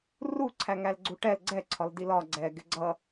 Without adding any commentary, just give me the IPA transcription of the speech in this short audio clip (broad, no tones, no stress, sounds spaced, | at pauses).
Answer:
r u ǀʰ æ ŋ æ l ɡ͡ǀ u ʈ ɛ l ɡ͡ǀ ɛ ǀʰ ɒ l d i l ɒ ɡ͡ǀ ɛ ɡ ɪ ɡ͡ǀ ʌ